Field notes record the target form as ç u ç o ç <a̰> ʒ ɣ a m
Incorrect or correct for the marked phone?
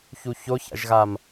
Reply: correct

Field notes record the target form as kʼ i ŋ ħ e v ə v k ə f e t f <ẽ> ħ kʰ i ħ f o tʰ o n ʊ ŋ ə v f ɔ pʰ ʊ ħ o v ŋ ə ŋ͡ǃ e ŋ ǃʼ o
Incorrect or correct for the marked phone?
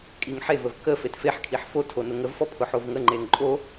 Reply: incorrect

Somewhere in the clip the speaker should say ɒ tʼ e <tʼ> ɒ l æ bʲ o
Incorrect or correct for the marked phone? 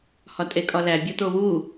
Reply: incorrect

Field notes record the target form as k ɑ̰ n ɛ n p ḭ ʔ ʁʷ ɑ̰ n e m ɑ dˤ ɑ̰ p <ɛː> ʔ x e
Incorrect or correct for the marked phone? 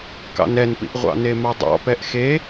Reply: incorrect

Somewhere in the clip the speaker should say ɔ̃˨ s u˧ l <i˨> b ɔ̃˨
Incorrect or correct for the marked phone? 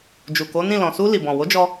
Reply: correct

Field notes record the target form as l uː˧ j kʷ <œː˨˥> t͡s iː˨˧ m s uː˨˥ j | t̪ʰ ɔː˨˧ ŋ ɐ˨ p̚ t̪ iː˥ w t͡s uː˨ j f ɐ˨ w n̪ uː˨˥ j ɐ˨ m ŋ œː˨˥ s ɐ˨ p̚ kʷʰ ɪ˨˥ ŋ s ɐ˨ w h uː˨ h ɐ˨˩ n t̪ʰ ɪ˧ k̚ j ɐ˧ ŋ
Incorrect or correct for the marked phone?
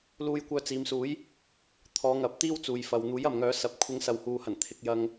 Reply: incorrect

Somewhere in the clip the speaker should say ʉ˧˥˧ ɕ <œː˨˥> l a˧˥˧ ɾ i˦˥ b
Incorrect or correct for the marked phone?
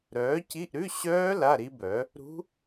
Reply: incorrect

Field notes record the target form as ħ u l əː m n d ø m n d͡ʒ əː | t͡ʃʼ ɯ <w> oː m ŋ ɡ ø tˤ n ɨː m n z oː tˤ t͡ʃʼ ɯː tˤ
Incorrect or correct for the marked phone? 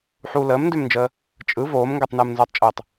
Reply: incorrect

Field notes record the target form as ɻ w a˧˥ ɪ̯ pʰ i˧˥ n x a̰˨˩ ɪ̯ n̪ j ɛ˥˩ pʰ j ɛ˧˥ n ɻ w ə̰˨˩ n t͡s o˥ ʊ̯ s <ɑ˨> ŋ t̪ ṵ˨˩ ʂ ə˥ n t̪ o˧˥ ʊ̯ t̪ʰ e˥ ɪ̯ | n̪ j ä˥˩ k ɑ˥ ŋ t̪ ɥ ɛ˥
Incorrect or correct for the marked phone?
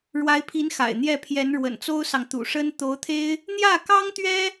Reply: correct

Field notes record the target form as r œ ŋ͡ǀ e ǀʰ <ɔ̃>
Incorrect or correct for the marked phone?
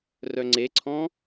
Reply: correct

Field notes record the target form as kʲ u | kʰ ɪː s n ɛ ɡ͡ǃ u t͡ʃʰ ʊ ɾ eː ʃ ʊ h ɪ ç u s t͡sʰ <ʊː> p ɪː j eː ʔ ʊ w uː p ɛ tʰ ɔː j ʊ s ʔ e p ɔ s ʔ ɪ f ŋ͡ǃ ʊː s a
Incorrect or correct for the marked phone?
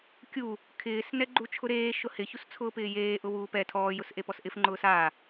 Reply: correct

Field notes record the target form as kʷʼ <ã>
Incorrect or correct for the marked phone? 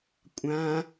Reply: correct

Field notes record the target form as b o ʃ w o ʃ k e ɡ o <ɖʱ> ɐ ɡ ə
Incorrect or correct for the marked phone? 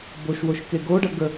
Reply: incorrect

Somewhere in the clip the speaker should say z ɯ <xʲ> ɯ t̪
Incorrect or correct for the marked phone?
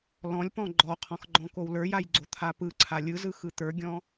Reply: incorrect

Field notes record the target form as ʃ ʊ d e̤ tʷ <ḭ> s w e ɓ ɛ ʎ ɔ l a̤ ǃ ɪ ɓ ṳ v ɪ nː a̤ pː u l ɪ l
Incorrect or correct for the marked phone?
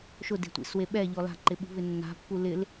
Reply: correct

